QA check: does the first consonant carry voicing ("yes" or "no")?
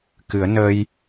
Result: no